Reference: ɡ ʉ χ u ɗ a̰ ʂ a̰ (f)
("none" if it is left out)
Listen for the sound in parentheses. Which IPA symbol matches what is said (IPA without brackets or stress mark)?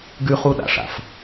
f